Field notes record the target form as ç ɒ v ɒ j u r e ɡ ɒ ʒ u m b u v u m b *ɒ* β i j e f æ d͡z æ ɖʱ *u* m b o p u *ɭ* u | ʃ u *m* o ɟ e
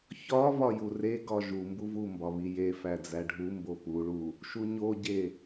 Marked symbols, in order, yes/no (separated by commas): yes, yes, yes, no